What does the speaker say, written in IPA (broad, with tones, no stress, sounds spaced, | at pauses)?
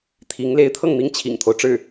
t̪ʰ i˧˥ ŋ l e˧˥ ɪ̯ t̪ʰ ɤ˥˩ ŋ n̪ i˥ ŋ t͡ɕʰ ḭ˨˩ ŋ t̪ʰ o˦ ʊ̯ ʈ͡ʂ ɻ̩˥˩